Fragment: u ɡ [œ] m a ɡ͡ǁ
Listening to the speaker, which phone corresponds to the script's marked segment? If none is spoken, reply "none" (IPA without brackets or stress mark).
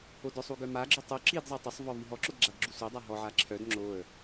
œ